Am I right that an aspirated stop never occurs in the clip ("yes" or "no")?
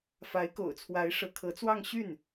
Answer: no